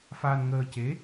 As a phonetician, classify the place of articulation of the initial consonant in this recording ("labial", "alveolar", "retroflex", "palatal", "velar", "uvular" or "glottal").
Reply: labial